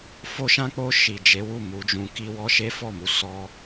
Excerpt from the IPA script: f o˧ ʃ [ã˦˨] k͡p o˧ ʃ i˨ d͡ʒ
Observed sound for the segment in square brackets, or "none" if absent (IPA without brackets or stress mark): ã˧